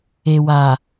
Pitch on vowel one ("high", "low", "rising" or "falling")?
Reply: low